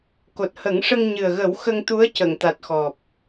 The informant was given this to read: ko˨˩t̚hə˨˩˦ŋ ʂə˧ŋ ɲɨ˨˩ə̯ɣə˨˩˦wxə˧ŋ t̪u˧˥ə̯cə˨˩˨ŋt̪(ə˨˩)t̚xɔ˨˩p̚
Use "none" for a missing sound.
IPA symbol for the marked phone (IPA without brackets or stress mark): a˨˩